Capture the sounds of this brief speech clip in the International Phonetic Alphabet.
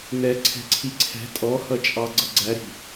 nɛ ǀʰɛ̤ǀʰiǀʰɛ̤ tʼɔhʌt͡ʃʼɑ ɡ͡ǀʌɡ͡ǀæɾi̤

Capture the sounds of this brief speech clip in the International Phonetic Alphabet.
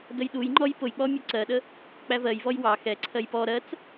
dəjɗujŋ͡ǃɔj pʊjk͡pɔ mʲuǀɜɗə | k͡pævɜjvɔj wɑ xɛ ǀʰɜjpɔ ɾɜt͡s

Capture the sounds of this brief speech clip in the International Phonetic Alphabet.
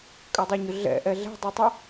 kʼʏdˤøɲʏ ɮɛ̰ʔɛ ɮɛ̤dˤutˤi

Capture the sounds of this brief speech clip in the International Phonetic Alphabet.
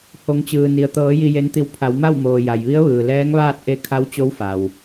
ho˩˧ŋt͡ɕɯː˩ni˩ə̯ t̪ɤː˩˧ ji˧je˧˥nt̪i˧w pʰa˩˧w ma˥˨wmoː˩ ja˩jʋi˧˥ə̯ʋɯː˩ lɛː˧˥ŋʋaː˥˨t̚ ʔe˧˥ kʰa˧˥wt͡ɕo˧˥wfa˩w

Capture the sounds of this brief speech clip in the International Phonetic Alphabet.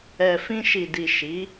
ɛ˨fĩ˧ʃi˨di˨ ʃi˨˦

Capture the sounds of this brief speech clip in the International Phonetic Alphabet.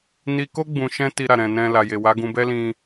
ni˧ko˦ ɡ͡bũ˧ʃɛ̃˦ ti˧ɾa˨ɾɛ̃˨nɛ̃˧ la˨je˨wa˨˦ ɡũ˧bɛ˦ lĩ˧

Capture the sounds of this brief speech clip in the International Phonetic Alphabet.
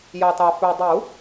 jɑ˨tɑ˨ fø˨dˤu˨˩˦

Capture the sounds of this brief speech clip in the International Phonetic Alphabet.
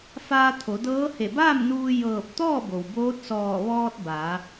faː˧t̪ʰo˩˧dɤː˧˥ he˧˩baː˥˨mnuː˧ jɤː˧˩p̚ t̪ɔː˥˨bo˩w boː˧˥t̚sɔː˧˩ ʋɔː˧t̚ ba˩˧

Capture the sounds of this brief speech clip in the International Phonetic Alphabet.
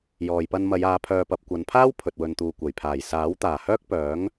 jɔː˨jpɐ˧nmɐ˨˧j aː˨˧pʰœː˨pɐ˨p̚ kʷɐ˨˧npʰaː˥w pʰɵ˨t̚wɵ˨nt̪uː˨ kʷɐ˨˩jpʰaː˨˩j saː˨˥w t̪aː˨˩hœː˥k̚pœː˨˥ŋ

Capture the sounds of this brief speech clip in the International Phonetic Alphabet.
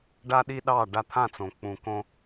ɖa˦ɗi˦ɗɑ˦˨ ɖa˧t̪ʰã˦˨t͡sõ˨ k͡pũ˨kõ˧

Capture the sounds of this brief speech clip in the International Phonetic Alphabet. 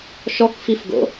ʃɔkfifɡo̰

